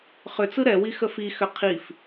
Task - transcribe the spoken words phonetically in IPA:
χ ʏ t͡s ɯ ɾ ɛ w i x ə f i x ʏ qʰ i f

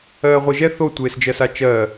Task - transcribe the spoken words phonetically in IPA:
ɜː ʁʷ e ʒ ɛ θ o tʷ eː s d͡ʒ ɜ s a t͡ʃ ɜː

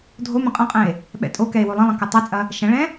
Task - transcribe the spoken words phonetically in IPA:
dʱ o m ə̃ qʼ ɐ̃ qʼ ɛ̃ e̯ | ɓ ɛ̰ tʼ o k ɛ e̯ w o lˠ ə̃ lˠ ɐ̃ k ɐ tˤ ɛ t͡sʼ ɐ | ʃ ɐ̃ ɭ ɛ̃

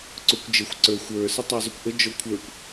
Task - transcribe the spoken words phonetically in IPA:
ǀ ʊ kʷ d͡ʒ ə xʷ ǀ ə˞ xʷ ə˞ s ə tˤ ɛ zˤ ʊ kʷ ʔ ə d͡ʒ ɔ kʷʰ ə˞ kʷ

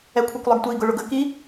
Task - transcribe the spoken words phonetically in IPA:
ɛ kʷʰ ɛ kʷ lˠ ʌ ɡ tʷ i ɡ ʊ ɭ ʊ ɡ ə k i

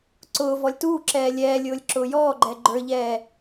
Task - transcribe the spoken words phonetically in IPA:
ǀ ʊː v ɔ lʲ t uː ǁ ɛː lʲ ɛː lʲ ʊː lʲ ǁ ʊː j ɔː ɡ͡ǃ ɛ ɡ͡ǃ ə˞ ʎ ɛː

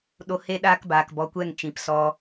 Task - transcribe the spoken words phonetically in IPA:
ɗ o˧ h e˦ ɗ aː˦ k b aː˨ k b ɔ˨˦ kʷ ɛ˦˨ ŋ t͡ʃ ĩ˨ p s ɔ˧

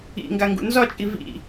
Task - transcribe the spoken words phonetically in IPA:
ḭ ŋ ɡ a ŋ ɡ ṵ n z ɒ t͡ʃʼ i v ḭ

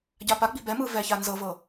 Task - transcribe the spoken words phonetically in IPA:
ɟ a p a ɡ͡b i̤ b ɛ m ɯ v ɛ ç a n z ɤ v ɤ

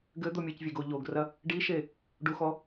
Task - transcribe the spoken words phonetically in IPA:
ɡ ɘ d̪ o mʲ ɘ c vʲ e ɡ o ʎ o ɡ r ɐ | ɖ i ʃ e | ɖ u x ɔ

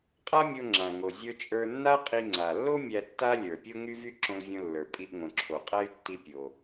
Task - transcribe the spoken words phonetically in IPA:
qʼ a˥ mʲ o˧ ŋ͡ǁ ã˩ ŋ o˩ zʲ ə˞˧ t͡ʃʼ ə˞˧ nː a˥ qʼ i˧ ŋ͡ǀ a˩ lː o˥ mʲ æ˧ tː a˥ lʲ ə˞˩ pʲ o˥ ŋ y˥ v y˥ ǁ õ˧ l vʲ õ˧ lː ə˞˩ pʼ i˧ ʔ ŋ õ˩ ǁʰ o˩ qʼ æ˥ y̯ tː i˧ pʲ o˩

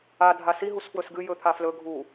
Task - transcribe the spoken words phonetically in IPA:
a dʱ a s i ɦ u s f w ɵ s ɡ ɨ j ɵ t̪ʰ a f l ɵ ɡʱ u

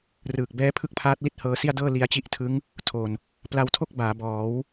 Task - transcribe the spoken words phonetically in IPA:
r ɯː˨˩ k̚ b ɛː˦˥ pʰ ɯ˥˩ k̚ pʰ aː˦˥ t̚ l i˦˥ t̚ h ɤː˧ s i˥˩ a̯ d ɤː˥˩ l i˧ a̯ t͡ɕ i˦˥ ʔ tʰ ɯ˦˥ ŋ | tʰ o˨˩ n | p l a˧ w tʰ o˥˩ k̚ b aː˩˦ b ɔː˩˦ w

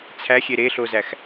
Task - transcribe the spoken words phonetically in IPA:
t͡sʰ æ xʲ e ɾ e ɬ o z æ x

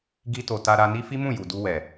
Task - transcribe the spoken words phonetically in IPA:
ɡ i˧ t o˨ t a˧ ɾ a˧ n i˦ f i˦ m ũ˦˨ j u˨ d u˧ w ɛ˨

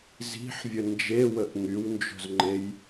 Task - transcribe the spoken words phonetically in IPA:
z i̤ ħ vʲ ə n d͡ʒ e w ə ʔ ŋ y w n d͡ʒ o̤ z ŋ͡ǃ e j

